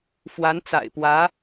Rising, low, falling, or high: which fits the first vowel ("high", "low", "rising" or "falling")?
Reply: rising